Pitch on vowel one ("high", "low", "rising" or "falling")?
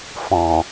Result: low